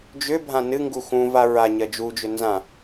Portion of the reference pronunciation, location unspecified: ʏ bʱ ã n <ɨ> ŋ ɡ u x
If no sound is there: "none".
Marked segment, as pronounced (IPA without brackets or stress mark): ɨ